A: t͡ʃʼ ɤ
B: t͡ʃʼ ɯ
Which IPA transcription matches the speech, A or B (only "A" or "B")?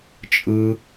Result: B